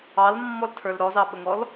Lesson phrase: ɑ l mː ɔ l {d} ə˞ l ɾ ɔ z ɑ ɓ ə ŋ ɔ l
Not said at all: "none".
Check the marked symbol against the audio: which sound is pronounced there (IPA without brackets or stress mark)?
tʰ